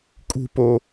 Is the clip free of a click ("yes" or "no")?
yes